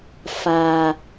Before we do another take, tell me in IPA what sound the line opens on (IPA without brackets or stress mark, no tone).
f